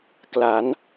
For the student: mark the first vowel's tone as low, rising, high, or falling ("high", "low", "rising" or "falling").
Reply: rising